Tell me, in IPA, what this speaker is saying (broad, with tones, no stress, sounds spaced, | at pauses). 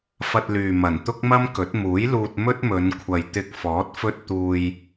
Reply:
f ɐ˧ t̚ l yː˨ m ɐ˨˩ n t̪ ʊ˥ k̚ m ɐ˥ m k ɵ˨˥ t̚ m uː˨˥ j l uː˧ t̚ m ɵ˥ t̚ m ɵ˨˧ n kʷʰ ɐ˨ j t̪ ɪ˧ k̚ f ɔː˨˥ t̚ f ɵ˥ t̚ t̪ uː˧ j